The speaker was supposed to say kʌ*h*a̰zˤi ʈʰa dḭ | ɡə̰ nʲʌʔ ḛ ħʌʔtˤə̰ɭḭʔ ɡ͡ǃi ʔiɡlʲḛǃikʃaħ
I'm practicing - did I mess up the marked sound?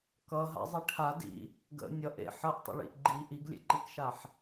yes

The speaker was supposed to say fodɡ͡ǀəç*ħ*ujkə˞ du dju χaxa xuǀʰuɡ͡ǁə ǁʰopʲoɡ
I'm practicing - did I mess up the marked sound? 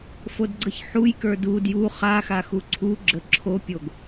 no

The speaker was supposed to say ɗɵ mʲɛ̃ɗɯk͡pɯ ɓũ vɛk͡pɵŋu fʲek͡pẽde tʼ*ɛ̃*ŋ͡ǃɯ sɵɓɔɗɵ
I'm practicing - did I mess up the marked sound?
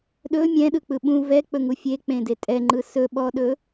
yes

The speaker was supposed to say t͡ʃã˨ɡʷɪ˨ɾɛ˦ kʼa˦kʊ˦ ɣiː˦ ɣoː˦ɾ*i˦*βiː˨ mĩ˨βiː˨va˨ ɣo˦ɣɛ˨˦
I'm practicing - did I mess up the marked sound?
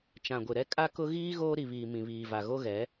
yes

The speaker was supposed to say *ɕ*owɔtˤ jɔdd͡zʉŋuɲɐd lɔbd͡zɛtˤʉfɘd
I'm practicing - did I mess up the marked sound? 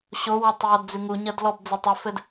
no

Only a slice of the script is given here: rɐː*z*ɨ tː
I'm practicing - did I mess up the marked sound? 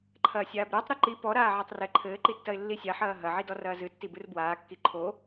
no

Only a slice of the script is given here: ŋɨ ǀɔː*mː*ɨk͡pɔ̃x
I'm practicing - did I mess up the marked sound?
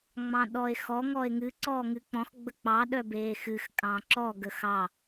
yes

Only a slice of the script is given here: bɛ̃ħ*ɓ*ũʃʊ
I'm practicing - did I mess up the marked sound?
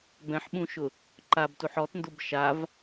no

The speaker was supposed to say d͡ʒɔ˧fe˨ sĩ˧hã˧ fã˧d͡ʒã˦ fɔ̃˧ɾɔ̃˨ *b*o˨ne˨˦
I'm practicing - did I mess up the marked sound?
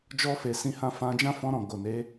yes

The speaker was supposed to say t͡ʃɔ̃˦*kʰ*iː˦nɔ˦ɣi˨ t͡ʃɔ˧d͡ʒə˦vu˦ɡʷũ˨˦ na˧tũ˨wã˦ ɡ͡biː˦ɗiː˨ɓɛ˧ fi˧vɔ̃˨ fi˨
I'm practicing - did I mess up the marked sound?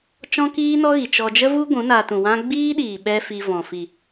yes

